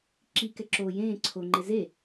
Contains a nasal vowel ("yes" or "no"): yes